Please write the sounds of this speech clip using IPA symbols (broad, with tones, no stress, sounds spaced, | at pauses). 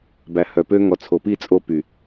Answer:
b æ˨ h œ˨ p ø˧ ŋ ɔ˨ t͡sʰ o˨ p i˦˨ t͡sʼ o˧ p y˨